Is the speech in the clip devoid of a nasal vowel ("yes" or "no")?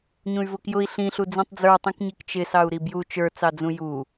no